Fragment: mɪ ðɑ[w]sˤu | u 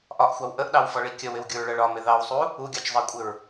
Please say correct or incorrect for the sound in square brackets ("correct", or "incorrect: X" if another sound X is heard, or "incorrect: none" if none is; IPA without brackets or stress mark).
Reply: correct